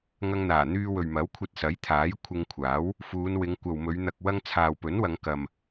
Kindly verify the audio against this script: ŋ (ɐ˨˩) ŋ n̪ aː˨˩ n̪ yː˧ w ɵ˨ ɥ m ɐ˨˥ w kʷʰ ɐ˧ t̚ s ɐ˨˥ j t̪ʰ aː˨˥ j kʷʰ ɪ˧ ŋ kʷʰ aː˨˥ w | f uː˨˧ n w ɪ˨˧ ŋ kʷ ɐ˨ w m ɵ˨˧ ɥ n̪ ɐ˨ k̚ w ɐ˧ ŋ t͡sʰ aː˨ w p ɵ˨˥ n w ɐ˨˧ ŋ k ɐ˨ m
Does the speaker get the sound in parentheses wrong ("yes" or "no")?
yes